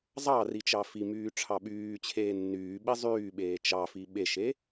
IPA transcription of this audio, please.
zˤɑ rit͡ʃɑfimyː ʈ͡ʂʰɑɓyːt͡ɕʰeː nːyː ɓizˤyːɓeː t͡ʃɑfi ɓeʃe

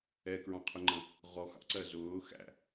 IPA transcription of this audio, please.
ɛkɹɑ̃qʰʊŋ͡ǃə̃ | ʁɔxɑ̰ǀɜ zʊː xæ̰

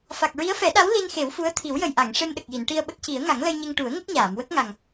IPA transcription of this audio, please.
fa˨˩k̚ɹi˧˥ə̯fɛ˨˩˦ɗa˧˥w li˧nxe˨˩˦wfu˧˥ə̯t̪ʰi˨˩˦w jə˨˩jʔa˨˩˨ŋ ʂe˧mɗə˨˩k̚ji˨˩˨n ʈi˧ə̯ɓə˦˥k̚ci˨˩˦ə̯ ŋa˨˩˦ŋlə˧jɲe˧ŋ ʈu˨˩˦ə̯ŋə˦˥k̚ɲaː˨˩˨mwə˦˥k̚ ŋa˨˩ŋ

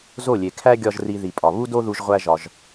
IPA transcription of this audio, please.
zo˦˨lʲe˨kʰæ˦ ɡʲɒ˦ʒri˧ði˨pʼɒ˨ βu˦do˦ðu˧ʒ ʁʷæ˦ʒɒ˧ʒ

